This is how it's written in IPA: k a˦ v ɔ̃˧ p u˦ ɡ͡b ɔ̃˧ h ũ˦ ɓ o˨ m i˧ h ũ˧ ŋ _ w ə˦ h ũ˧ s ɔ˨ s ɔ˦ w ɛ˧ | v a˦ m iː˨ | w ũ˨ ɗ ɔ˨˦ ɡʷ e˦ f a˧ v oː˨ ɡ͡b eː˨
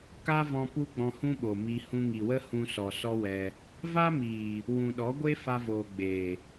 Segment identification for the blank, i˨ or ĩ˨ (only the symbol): i˨